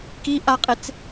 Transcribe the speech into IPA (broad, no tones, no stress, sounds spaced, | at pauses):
k i ʔ a qʼ e t͡s